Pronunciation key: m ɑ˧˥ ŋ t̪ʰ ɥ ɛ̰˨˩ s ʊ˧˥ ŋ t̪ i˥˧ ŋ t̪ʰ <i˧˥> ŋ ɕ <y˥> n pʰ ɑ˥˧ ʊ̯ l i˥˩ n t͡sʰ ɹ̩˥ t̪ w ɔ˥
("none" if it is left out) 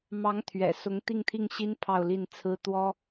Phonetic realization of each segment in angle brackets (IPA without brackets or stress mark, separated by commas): i˥˩, i˥